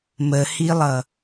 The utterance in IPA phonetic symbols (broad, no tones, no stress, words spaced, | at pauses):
məhilˠʌ